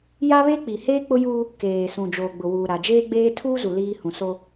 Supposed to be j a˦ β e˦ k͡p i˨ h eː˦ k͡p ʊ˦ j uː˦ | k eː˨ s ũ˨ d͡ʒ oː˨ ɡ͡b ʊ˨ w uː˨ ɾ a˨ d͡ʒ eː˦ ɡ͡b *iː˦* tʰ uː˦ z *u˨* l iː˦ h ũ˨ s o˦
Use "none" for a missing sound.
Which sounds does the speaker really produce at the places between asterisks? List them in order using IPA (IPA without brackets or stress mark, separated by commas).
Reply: eː˦, u˨